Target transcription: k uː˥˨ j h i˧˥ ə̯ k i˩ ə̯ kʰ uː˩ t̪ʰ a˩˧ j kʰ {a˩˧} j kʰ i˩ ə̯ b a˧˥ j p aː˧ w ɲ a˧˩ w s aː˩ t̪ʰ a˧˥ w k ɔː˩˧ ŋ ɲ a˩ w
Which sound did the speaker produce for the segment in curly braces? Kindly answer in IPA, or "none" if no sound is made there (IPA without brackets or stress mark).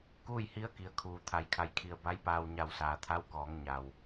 a˩˧